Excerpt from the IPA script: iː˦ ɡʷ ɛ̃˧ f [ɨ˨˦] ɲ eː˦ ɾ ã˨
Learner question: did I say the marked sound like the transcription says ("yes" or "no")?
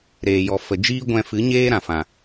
yes